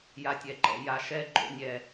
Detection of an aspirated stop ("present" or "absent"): absent